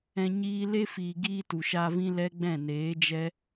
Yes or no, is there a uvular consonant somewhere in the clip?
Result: no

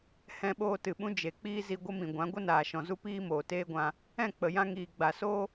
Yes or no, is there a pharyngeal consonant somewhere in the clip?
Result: no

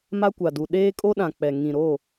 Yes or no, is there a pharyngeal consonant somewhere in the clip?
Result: no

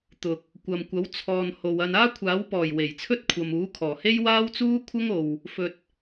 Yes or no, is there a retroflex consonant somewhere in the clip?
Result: no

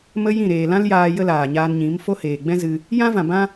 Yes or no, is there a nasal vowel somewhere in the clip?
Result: yes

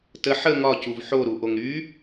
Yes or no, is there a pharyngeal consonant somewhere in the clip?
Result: yes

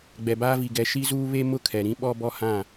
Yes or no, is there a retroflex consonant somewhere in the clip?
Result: no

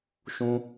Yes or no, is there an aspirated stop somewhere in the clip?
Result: no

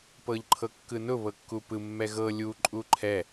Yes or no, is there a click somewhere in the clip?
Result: yes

